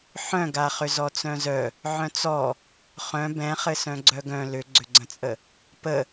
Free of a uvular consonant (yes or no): no